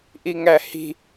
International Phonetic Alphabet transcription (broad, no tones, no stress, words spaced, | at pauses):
ʔiŋæhi̤